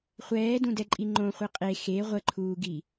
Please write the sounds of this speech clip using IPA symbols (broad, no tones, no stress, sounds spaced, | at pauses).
χʷ ɛː d ũ d ɛ ǃʼ i ŋ͡ǃ õ χʷ i qʼ e x e ʁʷ ə ǃʰ uː ɡ i